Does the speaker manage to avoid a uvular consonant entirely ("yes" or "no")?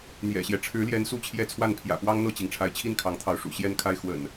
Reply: yes